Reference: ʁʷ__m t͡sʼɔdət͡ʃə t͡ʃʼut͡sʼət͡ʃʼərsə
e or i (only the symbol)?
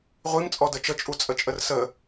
i